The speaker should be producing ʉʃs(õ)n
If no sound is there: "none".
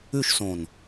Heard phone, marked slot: õ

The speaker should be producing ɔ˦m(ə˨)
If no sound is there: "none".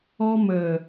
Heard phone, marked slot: ə˨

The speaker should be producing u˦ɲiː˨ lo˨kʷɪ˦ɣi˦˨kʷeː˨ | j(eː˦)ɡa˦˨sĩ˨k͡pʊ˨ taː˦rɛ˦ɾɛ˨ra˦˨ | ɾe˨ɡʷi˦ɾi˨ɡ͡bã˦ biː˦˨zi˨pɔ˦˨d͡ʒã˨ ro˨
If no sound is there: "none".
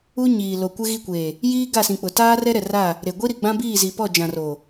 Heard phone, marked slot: iː˦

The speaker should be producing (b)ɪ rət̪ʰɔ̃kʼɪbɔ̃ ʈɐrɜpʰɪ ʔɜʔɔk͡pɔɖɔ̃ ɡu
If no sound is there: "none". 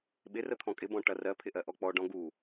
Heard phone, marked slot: ɓ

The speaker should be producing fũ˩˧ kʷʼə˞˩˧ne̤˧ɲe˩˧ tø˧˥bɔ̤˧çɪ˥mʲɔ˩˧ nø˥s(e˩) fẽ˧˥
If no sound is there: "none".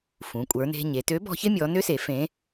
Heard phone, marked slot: e˩˧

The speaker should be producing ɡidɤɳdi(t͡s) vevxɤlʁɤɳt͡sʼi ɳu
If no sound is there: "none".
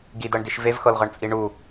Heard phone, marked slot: ʃ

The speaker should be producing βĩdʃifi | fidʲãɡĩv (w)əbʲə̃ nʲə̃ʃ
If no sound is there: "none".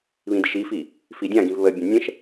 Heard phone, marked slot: β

